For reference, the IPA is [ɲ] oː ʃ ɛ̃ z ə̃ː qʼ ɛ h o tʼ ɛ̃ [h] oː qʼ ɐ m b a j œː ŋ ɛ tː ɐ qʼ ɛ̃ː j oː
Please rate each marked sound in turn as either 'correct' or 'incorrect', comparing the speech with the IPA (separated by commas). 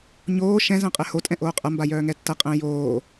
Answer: correct, incorrect